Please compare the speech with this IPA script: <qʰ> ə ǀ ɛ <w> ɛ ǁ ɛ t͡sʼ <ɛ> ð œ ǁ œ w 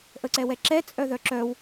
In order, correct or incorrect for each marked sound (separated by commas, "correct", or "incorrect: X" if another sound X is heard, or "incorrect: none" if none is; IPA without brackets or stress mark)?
incorrect: ʔ, correct, incorrect: œ